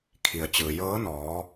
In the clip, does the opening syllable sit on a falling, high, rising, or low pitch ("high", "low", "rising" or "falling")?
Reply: low